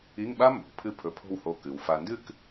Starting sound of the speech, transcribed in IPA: i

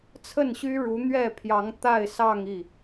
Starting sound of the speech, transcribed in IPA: t͡sʰ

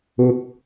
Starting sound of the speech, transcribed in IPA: ʊ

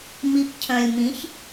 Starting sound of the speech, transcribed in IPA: m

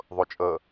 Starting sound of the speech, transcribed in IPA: ðˤ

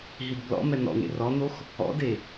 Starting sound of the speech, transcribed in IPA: ɦ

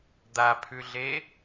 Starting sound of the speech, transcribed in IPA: d̪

